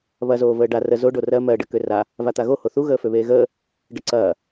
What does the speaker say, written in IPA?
βɐ zoːvəːɖa rə zoɖo rɜ mɜɖə køra | vat̪aɣo hoθu ɣəːføβeːɣəː | ɖəǀɐː

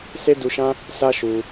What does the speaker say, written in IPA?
se˦du˧ʃã˦ | sa˦ ʃu˧

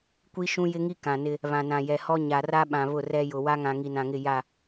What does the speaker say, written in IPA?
kʷi˦ʃũ˦jɪ˦ŋi˦ kã˨nɪ˦ | βã˨nã˨jɛ˨hɔ˦ ɲa˨ra˦ɓã˨ βʊ˦˨rɛ˦jʊ˨ wa˦ŋã˨ ŋi˨nã˨ŋɪ˦˨ ja˦˨

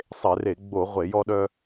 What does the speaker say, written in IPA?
sˤe˧˩˧re˧˩˧ ɡ͡bo˧˩˧ ʁʷe˧˩˧jɔ˦ɗœ˦

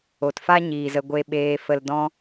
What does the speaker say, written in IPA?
o˨tfa˦ ɲiː˨zə˧ɡʷe˧ɓeː˧ fə˨ldɔ̃˧

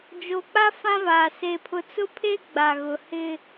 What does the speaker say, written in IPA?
d͡ʒo˨k͡pa˦ fã˦vaː˨ se˨pʰʊ˨ t͡sʊ˦pʰe˦ɡ͡ba˨ ɣʊ˨hɪ˦

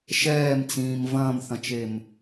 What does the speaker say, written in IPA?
ʃɛːmt͡sĩːm vɐ̃ːmθɐ̃t͡ʃem

